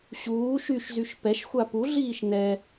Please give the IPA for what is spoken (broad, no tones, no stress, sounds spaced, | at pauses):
ɕ uː ʃ y ʃ z y ʃ p ɛ ʃ xʷ a p u ɮ iː ʃ n ɛ